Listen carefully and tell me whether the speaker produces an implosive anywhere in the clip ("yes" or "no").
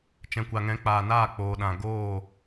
yes